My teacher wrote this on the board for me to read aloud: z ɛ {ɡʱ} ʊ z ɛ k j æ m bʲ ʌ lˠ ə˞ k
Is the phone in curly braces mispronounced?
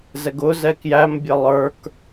yes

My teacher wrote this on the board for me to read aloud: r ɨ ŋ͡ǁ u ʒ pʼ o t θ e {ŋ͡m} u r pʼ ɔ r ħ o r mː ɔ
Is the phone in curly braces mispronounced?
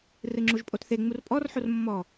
no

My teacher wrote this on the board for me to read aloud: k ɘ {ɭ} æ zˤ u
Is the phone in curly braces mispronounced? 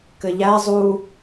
yes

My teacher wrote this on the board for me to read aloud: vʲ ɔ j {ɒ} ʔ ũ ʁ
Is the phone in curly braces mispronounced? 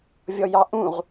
yes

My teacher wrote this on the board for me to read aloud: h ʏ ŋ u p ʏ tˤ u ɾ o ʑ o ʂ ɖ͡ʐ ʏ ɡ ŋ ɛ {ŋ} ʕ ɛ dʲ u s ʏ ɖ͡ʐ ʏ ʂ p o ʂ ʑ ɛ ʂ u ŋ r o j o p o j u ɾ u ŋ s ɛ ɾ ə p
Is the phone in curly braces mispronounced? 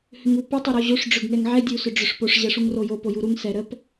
no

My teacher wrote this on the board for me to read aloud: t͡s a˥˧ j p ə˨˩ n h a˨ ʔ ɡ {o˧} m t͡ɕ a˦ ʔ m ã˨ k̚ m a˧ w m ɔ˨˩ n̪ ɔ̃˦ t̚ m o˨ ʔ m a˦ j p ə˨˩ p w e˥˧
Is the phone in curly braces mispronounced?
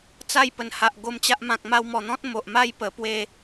no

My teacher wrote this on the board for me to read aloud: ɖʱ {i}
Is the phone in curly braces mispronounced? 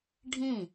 yes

